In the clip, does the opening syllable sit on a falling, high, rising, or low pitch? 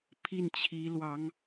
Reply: falling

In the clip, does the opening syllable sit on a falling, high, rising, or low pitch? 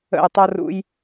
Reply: falling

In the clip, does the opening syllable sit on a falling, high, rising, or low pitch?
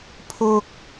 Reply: high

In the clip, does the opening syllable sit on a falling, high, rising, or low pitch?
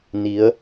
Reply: rising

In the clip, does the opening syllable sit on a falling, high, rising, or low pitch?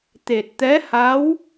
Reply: low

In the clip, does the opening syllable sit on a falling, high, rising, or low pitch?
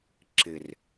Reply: low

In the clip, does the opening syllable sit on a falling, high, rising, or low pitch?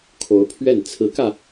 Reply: rising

